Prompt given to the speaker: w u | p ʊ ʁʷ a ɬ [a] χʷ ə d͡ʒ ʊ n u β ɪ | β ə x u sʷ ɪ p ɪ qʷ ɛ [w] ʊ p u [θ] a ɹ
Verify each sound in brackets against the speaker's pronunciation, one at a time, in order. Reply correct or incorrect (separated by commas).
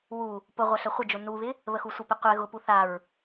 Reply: incorrect, incorrect, correct